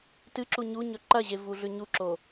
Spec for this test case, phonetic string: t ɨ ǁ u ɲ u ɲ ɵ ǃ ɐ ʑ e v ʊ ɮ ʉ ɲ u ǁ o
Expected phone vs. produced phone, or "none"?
ʊ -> u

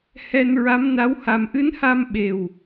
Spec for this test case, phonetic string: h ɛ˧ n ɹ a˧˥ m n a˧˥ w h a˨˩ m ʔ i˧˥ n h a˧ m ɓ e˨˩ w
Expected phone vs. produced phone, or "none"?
i˧˥ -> ɨ˧˥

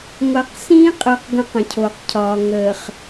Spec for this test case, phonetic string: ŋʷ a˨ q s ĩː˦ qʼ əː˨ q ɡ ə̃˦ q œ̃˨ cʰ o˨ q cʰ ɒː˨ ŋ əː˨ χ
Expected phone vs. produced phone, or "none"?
œ̃˨ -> ə̃˨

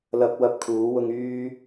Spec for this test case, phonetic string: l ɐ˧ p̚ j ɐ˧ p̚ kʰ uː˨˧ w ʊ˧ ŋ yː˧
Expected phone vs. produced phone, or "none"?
j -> w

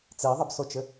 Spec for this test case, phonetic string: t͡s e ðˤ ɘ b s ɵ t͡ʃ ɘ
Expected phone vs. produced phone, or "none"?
ɵ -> o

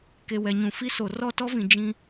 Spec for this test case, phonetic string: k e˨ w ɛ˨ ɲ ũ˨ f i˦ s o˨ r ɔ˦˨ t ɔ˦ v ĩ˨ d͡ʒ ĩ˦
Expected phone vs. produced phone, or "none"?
none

